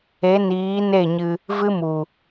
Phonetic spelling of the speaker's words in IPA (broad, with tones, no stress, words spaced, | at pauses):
e˨˦niː˨˦ne˦˨ɲɨ˧ | vɨ˦mu˨